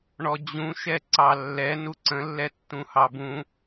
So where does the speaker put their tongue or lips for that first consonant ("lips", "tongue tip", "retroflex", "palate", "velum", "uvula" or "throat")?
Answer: retroflex